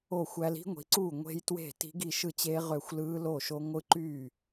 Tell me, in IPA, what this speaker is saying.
o˥˩ xʷ æ˦˥ l i̤˦˥ ŋʷ i̤˩˥ ǀ uː˥˩ ŋʷ e̤˦˥ j t w e̤˥˩ t i̤˦˥ ɡ i˥˩ ʃ ɯ˥˩ t͡ɕ eː˦˥ ʁ ø˥˩ xʷ l ɯː˦˥ l o˥˩ ʃ o˦˥ ŋʷ ɯ˦˥ ǃ yː˥˩

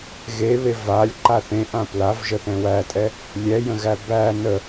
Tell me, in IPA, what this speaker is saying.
ɣ e β e v a lʲ ǃ a θ ẽ ʔ ã p l a v ʒ ə θ ɛ̃ w æ tʼ ɛ | lʲ ɛ j ə̃ ɣ æ b æ n ə

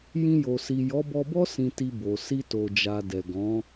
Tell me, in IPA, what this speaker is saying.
j ĩ˧ j o˨ s i˨ j ɔ˨˦ b ɔ˧ b ɔ˦ s ĩ˧ t i˧ b o˨ s i˧ t o˨ d͡ʒ a˨ d ɛ˨ ɡ ɔ̃˨˦

